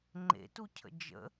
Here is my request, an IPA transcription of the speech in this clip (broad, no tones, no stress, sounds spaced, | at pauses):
ŋ͡ǃ ḛ t u cʰ ə̰ d͡ʒ ə̰